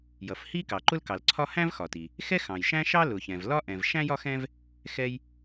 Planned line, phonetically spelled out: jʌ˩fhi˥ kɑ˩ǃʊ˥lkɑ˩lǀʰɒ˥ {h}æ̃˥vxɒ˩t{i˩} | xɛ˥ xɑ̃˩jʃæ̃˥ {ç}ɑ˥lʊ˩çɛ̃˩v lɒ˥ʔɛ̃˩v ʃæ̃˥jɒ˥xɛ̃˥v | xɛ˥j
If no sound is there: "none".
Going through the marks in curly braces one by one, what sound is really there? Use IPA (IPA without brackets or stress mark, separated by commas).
h, i˩, ʃ